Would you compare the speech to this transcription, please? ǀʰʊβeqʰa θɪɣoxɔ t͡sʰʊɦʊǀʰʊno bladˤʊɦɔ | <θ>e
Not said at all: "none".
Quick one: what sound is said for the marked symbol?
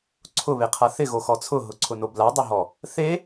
θ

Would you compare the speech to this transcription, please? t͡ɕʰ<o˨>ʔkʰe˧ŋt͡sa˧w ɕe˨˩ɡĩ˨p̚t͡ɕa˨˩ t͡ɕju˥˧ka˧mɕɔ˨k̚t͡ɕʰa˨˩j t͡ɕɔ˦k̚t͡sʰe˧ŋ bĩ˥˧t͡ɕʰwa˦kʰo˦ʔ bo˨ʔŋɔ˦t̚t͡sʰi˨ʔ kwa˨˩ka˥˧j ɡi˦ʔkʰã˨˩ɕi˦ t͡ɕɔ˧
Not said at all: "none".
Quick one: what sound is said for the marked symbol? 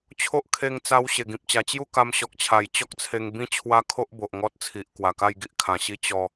o˦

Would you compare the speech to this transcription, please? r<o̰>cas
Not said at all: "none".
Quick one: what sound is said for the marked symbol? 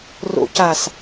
o̰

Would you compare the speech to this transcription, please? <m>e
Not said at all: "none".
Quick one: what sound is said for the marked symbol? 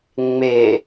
ŋ͡m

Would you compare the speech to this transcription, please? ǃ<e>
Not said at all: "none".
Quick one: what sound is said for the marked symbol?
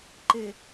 e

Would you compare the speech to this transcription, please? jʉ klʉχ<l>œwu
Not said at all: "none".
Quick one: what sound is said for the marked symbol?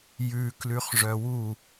ʐ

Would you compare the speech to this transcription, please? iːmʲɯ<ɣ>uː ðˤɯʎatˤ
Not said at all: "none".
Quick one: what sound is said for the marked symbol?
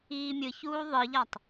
ç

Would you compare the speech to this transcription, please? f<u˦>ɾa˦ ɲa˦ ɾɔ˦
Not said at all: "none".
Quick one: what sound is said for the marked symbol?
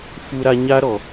u˦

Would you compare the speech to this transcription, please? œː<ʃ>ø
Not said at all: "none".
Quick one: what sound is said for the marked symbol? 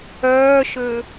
ʃ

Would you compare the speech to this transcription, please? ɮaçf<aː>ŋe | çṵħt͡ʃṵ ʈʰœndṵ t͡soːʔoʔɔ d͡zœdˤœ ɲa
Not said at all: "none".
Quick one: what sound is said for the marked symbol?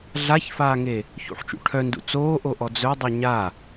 aː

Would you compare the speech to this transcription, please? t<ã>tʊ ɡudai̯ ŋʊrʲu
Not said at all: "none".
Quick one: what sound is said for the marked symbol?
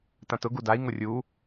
ã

